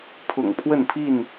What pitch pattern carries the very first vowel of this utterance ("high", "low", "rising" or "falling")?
low